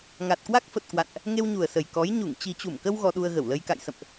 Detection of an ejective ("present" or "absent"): absent